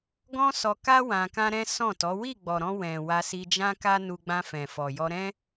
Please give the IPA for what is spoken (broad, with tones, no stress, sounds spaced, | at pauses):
ɡ ɔ̃˦ s ɔ˧ k a˦ w ã˧ k ã˦ ɾ ɛ̃˦ s ɔ̃˦˨ t ɔ˨˦ w i˦˨ ɡ͡b ɔ˨ ɾ ɔ̃˧ w ɛ̃˨ w a˧ s i˧ d͡ʒ ã˦ k a˦ n u˧ ɡ͡b ã˧ f ɛ̃˨ f ɔ˨ j ɔ˧ ɾ ɛ̃˦